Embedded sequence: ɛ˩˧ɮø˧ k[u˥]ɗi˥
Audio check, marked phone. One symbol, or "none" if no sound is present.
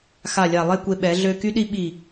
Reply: y˥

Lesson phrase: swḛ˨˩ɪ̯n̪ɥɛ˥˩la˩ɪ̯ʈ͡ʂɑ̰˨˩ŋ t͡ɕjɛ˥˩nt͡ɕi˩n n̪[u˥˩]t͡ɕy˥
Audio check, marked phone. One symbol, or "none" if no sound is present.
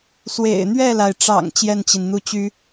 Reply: u˥˩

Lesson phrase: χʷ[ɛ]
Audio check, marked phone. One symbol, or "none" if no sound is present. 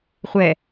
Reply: ɛ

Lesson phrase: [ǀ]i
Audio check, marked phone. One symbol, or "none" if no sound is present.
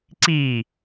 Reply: ǀ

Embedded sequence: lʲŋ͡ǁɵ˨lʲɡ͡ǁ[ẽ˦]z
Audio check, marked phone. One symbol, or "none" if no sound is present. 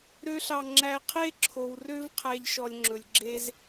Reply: e˦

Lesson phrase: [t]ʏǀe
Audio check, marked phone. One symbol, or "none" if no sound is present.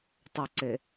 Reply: tˤ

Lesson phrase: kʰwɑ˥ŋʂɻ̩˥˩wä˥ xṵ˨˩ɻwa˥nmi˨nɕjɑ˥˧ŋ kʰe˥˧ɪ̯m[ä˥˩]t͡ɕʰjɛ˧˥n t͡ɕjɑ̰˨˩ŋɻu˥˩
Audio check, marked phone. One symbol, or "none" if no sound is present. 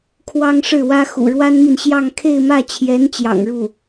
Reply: ä˥˩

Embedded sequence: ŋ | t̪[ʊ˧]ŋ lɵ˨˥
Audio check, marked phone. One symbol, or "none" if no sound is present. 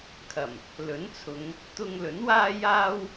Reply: ʊ˧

